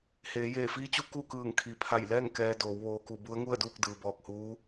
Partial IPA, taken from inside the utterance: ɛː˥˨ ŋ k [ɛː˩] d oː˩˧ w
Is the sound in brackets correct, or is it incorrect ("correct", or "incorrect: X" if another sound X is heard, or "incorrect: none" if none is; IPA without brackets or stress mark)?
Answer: incorrect: ɛː˧